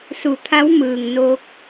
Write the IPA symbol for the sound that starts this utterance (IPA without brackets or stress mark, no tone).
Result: s